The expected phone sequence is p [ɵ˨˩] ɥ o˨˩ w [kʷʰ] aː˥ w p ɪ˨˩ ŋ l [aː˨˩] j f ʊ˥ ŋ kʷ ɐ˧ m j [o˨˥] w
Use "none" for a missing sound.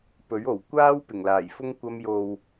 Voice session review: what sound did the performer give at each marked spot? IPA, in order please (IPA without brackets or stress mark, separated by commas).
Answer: ɵ˨˥, kʷ, aː˨˩, o˨